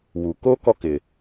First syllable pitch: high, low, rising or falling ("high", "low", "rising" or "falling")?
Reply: low